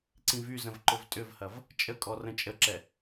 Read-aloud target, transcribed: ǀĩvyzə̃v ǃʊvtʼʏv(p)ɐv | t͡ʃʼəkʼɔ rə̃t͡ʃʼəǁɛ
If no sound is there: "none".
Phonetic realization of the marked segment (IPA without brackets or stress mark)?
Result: h